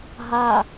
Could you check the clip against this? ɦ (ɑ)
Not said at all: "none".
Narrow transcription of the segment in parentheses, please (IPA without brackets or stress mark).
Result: a